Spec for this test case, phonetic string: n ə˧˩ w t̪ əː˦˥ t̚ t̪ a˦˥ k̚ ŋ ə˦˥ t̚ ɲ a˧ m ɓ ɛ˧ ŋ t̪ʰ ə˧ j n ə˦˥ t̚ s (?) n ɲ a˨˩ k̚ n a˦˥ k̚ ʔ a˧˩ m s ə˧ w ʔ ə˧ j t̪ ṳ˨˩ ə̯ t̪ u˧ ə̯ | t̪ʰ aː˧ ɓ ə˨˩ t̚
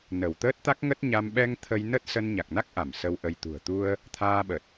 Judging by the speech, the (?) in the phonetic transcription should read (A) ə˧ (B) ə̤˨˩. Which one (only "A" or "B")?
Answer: A